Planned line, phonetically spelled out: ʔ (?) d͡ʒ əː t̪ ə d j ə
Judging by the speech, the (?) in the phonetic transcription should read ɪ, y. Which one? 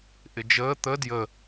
ɪ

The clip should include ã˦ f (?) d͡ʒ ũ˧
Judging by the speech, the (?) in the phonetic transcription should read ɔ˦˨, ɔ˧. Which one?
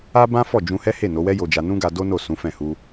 ɔ˦˨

